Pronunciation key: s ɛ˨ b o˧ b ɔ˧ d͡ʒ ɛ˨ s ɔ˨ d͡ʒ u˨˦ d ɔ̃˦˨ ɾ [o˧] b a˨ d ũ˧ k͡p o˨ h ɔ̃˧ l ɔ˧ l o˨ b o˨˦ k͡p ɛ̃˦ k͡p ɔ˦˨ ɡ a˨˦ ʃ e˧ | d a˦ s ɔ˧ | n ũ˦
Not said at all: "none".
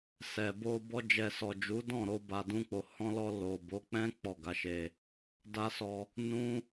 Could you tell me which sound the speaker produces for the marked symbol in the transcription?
o˧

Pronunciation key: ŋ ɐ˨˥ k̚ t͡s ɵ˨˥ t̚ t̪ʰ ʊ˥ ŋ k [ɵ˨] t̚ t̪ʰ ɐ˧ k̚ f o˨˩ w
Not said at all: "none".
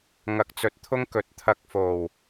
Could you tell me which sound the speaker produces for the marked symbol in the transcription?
ɵ˨˥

